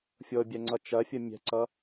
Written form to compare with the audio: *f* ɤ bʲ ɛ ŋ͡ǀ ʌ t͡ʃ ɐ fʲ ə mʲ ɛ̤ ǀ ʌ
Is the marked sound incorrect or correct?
incorrect